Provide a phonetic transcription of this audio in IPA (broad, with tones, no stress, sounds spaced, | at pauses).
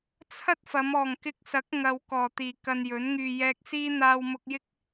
t͡sʰ ɐ˥ t̚ f ɐ˨˧ m ɔː˨˩ ŋ k ɪ˧ k̚ s ɐ˨˥ k̚ ŋ ɐ˨ w k ɔː˨˩ t̪ iː˨˩ k ɐ˧ n j ɵ˨˥ n ŋ yː˧ j ɛː˧ k̚ s iː˥ n̪ aː˧ w m ʊ˧ k̚ j ɪ˥ k̚